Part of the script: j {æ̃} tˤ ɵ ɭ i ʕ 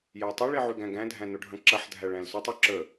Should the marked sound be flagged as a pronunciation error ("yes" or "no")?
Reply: yes